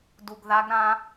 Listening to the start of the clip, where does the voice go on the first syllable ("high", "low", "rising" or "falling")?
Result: low